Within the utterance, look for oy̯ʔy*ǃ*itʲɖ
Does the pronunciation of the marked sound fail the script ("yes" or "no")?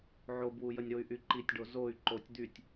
no